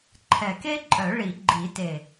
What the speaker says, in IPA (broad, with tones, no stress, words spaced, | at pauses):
ǃʰɛ˨˩ke˥ǃʼœ˨˩˦ ɭi˨˩˦ɡ͡ǃi˨˩˦te˨˩